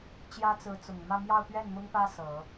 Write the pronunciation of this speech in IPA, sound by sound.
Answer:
t͡ɕ j ä˥ t͡s ɹ̩˧˥ t͡s ʊ˨˩ ŋ m ä˥˧ m j ɑ˥˧ ʊ̯ p ɥ ɛ˥˩ n m ʊ˥ ŋ p ä˥ s ɤ˨˩˦

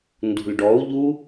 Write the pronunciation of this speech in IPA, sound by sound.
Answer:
n d ṳ l ɖ ɔ u̯ ʎ u

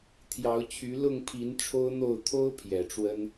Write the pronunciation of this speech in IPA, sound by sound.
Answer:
t̪ʰ j ɑ˨˦ ʊ̯ t͡ɕʰ y˨˦ l ʊ˥˨ ŋ pʰ i˨˦ n ʈ͡ʂʰ o˦ ʊ̯ n̪ o˥˨ ʊ̯ t̪ʰ o˦ ʊ̯ pʰ j ɛ˨˩ ʈ͡ʂ w ə˦ n

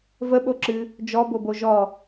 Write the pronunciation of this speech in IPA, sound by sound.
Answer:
v ə ɓ o ǁ ɨ | d͡ʒ ɔ b o b o ʒ ɔ

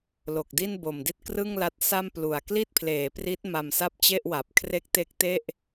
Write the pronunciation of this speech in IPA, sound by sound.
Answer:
l o˨˩ k̚ d i˥˩ n b o˨˩ m d i˥˩ t̚ k r ɯ˥˩ ŋ l a˦˥ t̚ s a˥˩ m p l u˨˩ a̯ k l i˥˩ t̚ pʰ l eː˩˦ p r i˦˥ t̚ m a˧ m s a˥˩ p̚ t͡ɕ e˥˩ ʔ w a˨˩ p̚ kʰ r e˦˥ k̚ t e˦˥ k̚ t e˥˩ ʔ

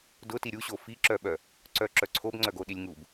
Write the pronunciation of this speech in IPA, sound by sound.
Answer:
d ʊ t i ɾʲ u ɕ o f i ǁ œ ɓ œ | ǀ œ ǁ œ ǀʰ o b ŋ͡ǀ œ ɡ o ɗ i lʲ ŋ u b

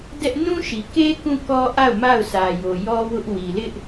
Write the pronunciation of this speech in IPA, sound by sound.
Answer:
d ɛ˦ ʔ n ũ˦ ʃ i˨ k e˦ k ũ˦˨ k ɔ˦ ʔ a˦˨ ʊ̯ m a˦˨ ʊ̯ s ä˨ j o˨ j ɔ˦ w ʊ˦ ʔ w i˨ l ɪ˦ ʔ

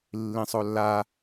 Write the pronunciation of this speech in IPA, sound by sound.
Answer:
lː ĩ sˤ o lː a

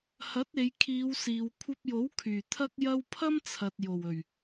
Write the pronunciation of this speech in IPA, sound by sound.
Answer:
h ɐ˨˥ t̚ e˨˧ j kʰ iː˨˧ w s iː˨ w kʷʰ ɐ˧ p̚ j o˨˥ w kʰ yː˨˩ t̪ʰ ɐ˥ k̚ j ɐ˥ w pʰ ɐ˥ m t͡sʰ ɐ˨ t̚ j o˨˩ w ɵ˨˩ ɥ

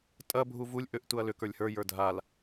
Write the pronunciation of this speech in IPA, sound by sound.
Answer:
tʼ ɐ bʱ u v u lʲ ʔ ʏ ʔ t u ɐ̯ l ʏ k ə˞ lʲ h ə˞ j ə˞ dʱ a l

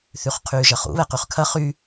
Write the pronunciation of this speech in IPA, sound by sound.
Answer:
θ y χ qʰ yː ʒ ɐ χ ṵ β ɛ q y χ kʰ ɐ χ y

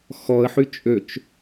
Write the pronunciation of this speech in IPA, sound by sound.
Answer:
x ɔ ə̯ ħ y t͡ʃʼ ø t͡ʃ

